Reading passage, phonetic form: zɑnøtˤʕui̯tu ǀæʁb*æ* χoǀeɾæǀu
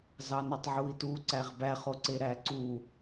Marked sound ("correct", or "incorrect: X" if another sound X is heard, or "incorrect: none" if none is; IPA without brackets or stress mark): correct